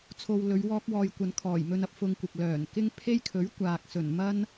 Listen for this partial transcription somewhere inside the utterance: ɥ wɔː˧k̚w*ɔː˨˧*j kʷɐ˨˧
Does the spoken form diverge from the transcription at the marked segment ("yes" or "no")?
yes